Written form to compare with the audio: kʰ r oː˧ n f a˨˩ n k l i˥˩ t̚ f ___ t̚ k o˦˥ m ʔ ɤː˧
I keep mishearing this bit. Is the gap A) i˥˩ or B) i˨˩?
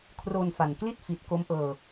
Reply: B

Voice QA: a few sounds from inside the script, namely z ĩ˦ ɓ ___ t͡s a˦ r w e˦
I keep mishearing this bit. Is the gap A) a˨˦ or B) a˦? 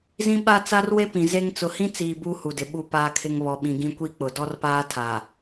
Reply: B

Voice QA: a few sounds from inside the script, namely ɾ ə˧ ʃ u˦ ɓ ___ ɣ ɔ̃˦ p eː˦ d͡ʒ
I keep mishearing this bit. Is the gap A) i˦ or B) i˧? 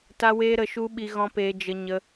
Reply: B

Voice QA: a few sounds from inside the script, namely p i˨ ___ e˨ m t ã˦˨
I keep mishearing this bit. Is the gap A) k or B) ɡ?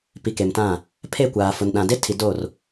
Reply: A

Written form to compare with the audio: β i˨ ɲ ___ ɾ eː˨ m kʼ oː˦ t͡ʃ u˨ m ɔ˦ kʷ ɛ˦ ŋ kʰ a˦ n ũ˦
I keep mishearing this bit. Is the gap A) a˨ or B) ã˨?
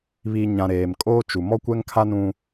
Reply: B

